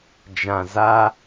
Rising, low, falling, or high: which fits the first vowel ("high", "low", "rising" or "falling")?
low